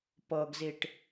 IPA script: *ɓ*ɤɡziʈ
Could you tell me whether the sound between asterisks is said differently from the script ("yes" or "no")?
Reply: yes